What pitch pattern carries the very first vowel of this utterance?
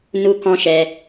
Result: high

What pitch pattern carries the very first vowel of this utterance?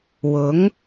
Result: rising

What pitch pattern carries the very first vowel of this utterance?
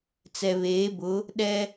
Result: low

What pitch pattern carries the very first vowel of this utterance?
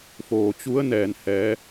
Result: low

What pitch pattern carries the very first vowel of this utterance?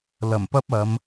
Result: low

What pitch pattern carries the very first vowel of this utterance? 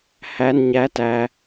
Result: high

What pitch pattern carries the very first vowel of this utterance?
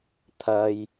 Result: low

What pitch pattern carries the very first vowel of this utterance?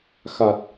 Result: low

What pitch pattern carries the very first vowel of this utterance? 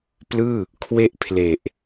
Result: falling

